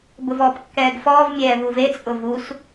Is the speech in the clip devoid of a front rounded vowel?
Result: yes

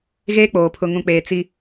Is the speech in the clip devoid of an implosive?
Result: yes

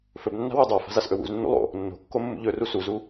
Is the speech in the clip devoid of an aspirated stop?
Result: yes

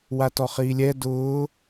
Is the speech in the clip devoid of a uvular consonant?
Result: no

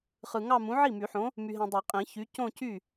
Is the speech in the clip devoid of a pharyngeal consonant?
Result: no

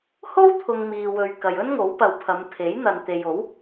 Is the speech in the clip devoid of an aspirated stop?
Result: no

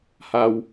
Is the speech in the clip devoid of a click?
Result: yes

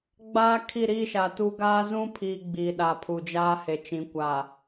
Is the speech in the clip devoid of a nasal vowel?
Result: no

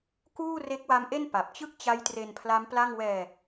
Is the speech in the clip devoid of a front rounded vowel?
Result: yes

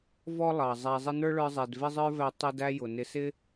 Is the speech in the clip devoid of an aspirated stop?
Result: yes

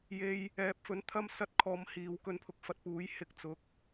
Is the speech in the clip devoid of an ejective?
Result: yes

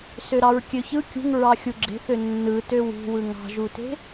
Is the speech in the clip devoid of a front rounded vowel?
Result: no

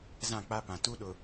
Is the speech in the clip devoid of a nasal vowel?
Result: no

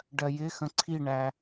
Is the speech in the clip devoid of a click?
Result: no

